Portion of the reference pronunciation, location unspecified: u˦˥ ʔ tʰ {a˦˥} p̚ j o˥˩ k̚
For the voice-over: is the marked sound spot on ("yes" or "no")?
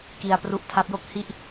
yes